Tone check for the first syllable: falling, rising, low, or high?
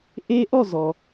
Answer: high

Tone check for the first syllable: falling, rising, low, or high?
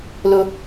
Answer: high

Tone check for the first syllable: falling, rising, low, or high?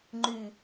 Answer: low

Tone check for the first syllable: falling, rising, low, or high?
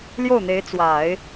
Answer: falling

